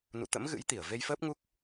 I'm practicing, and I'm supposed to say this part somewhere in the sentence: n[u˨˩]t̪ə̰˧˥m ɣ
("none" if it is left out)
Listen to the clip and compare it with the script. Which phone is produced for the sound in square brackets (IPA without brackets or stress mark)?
ṵ˧˨